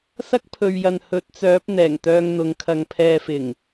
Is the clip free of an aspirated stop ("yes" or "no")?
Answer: no